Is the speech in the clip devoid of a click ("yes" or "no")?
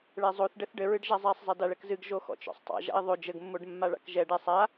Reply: yes